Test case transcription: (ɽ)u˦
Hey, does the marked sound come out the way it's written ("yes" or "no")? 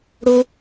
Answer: yes